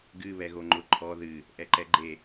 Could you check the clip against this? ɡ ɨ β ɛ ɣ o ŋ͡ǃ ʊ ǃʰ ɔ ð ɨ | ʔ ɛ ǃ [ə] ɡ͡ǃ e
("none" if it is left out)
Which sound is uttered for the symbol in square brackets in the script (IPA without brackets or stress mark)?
ɛ